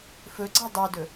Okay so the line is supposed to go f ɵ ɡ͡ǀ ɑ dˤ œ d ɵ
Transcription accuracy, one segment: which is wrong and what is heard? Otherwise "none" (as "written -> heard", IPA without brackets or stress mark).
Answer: none